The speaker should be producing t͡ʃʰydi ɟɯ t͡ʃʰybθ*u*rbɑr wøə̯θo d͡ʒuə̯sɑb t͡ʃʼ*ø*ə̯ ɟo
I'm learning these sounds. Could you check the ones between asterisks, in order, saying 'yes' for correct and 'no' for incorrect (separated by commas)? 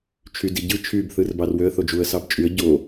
no, no